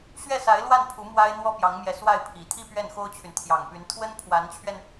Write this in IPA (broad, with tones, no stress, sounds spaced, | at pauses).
ɕ ɥ ɛ˥˩ s a˧˥ ɪ̯ l w a˥˩ n pʰ u˧˥ m w a˥ ɪ̯ n̪ w ɔ˥ p j ɑ˧˥ ŋ m j ɛ˧˥ s w a˥˩ ɪ̯ pʰ i˨˩ t̪ʰ i˥˧ p ɥ ɛ˥˩ n x o˥ ʊ̯ t͡ɕʰ y˨ n t̪ʰ j ɑ˨˩ ŋ p y˧˥ n t̪ʰ w ə˥ n pʰ w a˧˥ n t͡ɕʰ ɥ ɛ˧ n